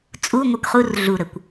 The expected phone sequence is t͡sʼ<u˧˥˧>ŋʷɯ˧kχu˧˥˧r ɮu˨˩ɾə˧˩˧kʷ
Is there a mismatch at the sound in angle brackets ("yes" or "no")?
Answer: no